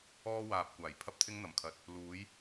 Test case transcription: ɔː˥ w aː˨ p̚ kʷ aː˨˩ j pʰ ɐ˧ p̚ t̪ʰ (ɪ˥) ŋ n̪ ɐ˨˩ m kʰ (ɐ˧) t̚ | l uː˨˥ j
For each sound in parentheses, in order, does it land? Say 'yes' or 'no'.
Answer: no, no

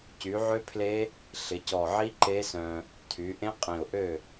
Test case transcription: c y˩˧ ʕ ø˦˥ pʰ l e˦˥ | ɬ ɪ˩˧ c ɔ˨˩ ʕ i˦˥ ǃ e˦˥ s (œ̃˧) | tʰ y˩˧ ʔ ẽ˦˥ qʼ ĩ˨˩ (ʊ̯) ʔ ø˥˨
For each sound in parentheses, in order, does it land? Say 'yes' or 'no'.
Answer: yes, yes

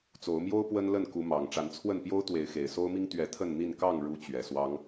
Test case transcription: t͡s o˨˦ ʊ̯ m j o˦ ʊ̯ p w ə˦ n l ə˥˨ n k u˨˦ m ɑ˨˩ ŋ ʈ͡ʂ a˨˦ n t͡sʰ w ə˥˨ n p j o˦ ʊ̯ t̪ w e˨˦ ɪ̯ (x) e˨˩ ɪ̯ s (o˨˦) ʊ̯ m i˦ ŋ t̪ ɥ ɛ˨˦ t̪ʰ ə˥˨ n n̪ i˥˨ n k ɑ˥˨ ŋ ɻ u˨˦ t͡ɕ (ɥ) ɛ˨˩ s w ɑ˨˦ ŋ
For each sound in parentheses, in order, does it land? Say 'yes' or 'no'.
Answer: yes, no, yes

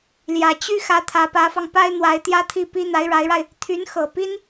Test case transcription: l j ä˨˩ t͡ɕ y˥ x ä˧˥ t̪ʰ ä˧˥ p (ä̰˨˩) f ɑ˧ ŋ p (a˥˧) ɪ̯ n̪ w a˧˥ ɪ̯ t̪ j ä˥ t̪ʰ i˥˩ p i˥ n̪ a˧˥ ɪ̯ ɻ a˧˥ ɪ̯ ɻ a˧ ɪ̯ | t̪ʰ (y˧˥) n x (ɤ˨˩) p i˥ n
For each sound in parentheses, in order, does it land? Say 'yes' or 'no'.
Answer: no, no, yes, yes

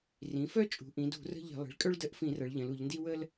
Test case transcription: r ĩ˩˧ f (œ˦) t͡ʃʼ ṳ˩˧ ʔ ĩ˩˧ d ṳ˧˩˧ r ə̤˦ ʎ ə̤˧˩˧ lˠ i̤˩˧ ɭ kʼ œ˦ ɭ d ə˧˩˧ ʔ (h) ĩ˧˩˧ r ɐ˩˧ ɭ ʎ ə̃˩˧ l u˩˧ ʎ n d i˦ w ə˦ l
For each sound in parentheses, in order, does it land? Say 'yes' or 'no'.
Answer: yes, no

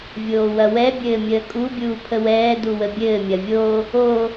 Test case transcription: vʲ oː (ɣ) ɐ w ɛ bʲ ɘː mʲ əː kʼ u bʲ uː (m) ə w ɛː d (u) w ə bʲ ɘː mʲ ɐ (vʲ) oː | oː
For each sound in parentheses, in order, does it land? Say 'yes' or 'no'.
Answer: no, no, yes, yes

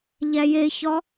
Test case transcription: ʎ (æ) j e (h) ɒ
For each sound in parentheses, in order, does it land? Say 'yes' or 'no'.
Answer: yes, no

